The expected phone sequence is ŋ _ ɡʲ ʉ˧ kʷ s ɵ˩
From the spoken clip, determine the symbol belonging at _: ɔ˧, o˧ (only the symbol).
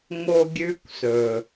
o˧